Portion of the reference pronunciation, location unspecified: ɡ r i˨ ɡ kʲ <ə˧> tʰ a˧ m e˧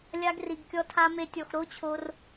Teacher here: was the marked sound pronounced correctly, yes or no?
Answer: no